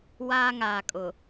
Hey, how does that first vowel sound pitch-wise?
high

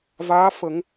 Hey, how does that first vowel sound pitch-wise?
rising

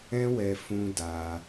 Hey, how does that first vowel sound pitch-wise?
high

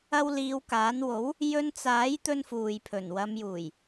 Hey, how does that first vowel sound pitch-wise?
high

